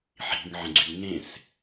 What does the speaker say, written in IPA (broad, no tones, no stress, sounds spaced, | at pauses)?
ħ i̤ ŋ ʕ ə̃ ɡ͡ǀ y ŋ ẽ s